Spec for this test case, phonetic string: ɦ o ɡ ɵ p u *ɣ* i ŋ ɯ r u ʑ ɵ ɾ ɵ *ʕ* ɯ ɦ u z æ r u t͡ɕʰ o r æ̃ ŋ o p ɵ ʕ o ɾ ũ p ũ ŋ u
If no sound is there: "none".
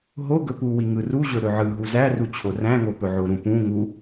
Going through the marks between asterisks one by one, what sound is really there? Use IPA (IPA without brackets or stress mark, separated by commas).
w, ʕ